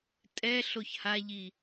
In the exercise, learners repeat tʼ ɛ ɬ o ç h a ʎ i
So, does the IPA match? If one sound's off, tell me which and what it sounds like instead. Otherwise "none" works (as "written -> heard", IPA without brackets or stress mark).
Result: none